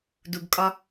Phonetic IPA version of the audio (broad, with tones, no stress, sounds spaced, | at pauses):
d u˨ ɡ kʼ ɒ˧